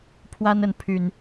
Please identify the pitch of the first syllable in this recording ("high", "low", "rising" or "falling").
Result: high